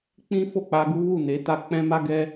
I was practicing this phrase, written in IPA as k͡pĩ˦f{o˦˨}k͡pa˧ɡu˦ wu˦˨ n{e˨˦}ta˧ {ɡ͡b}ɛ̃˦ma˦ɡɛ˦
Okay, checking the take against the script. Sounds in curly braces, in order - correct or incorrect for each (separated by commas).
correct, correct, incorrect